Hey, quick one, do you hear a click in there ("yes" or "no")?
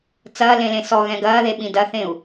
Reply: no